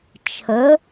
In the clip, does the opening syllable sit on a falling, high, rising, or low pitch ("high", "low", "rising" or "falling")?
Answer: rising